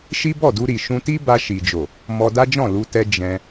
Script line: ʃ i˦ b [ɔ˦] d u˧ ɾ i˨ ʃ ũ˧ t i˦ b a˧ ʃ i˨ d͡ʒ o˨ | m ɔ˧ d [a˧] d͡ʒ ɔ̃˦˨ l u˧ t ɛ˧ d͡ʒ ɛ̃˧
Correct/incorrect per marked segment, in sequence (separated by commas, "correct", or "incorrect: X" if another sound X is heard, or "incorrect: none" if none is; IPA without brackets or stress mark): incorrect: ɔ˦˨, incorrect: a˦